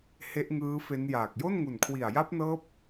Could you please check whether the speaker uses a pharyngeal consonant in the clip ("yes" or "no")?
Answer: no